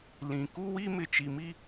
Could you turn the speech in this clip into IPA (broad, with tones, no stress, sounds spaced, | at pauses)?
l ĩ˨ k u˦ w i˦ m ɪ˨ t͡ʃ i˨ m i˦